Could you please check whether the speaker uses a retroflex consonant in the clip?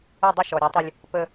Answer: no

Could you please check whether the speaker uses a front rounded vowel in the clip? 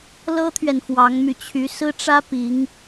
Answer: yes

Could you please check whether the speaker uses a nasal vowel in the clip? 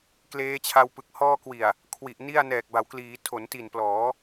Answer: no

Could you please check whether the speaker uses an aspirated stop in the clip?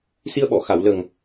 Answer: no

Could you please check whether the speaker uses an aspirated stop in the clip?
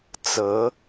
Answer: no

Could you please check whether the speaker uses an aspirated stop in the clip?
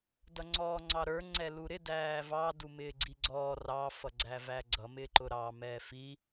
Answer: no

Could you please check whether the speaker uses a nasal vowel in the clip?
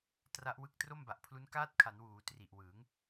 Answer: no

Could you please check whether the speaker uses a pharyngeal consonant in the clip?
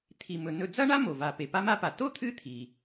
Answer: no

